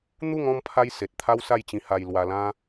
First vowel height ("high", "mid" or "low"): high